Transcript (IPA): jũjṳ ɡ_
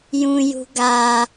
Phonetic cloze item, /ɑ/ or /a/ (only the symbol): a